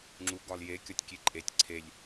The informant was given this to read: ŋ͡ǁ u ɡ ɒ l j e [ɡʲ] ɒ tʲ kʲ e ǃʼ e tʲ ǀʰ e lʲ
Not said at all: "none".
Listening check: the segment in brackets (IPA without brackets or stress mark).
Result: kʲ